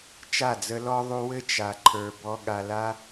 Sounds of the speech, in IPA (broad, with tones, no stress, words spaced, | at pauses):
t͡ʃa˦˨d͡zə˧lɔ˦ ðˤu˧wɘ˦ t͡ʃa˧ǃʰə˞˧ bɔ˧ɠa˧la˦